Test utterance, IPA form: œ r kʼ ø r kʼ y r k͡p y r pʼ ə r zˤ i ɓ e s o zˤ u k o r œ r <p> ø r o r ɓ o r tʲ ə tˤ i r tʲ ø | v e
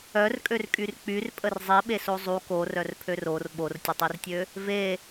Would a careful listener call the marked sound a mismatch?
yes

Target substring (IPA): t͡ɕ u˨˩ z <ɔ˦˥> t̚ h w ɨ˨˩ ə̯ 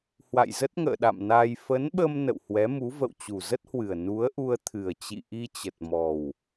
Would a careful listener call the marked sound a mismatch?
yes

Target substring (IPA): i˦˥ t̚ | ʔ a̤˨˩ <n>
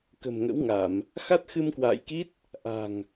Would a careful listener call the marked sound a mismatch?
yes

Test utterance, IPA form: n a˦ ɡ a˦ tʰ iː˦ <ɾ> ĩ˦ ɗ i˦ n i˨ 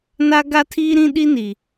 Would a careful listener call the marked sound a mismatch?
no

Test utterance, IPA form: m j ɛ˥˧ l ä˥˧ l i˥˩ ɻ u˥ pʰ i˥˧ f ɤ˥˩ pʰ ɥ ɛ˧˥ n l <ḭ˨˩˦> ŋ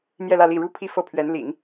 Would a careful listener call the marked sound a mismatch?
no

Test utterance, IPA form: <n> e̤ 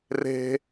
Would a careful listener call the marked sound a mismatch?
yes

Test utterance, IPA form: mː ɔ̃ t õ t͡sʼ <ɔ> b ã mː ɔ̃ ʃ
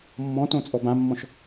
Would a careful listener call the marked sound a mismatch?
no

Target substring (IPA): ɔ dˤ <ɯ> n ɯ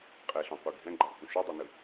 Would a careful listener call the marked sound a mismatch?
yes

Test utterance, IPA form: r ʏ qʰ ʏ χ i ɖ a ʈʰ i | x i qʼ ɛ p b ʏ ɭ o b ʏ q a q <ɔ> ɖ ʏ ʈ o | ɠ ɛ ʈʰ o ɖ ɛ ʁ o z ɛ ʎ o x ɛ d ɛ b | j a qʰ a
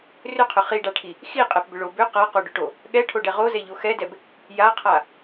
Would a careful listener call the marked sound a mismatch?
yes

